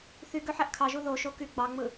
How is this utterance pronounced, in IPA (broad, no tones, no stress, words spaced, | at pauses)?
θy ɡøħæʔkʰɑʒu ðoʃo ky ɡ͡bɑŋ͡mɯ